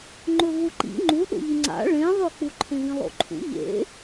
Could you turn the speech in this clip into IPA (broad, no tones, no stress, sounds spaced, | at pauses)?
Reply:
ŋ͡ǃ ɵ v u ǃ ḭ ŋ͡ǃ u ɗ o̰ ʎ ɨ ŋ͡ǀ a̰ ɭ ẽ ðˤ ɵ k͡p u ǃʰ ẽ v ĩ lˠ o̰ ǃʰ ṵ ʎ ḛ